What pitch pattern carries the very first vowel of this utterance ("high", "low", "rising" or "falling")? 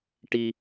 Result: high